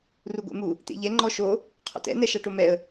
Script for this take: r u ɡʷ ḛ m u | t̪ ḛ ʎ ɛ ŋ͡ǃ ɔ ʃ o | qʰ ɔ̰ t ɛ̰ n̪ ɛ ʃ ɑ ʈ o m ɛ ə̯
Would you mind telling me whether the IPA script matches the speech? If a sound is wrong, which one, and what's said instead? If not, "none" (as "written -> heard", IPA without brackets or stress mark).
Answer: none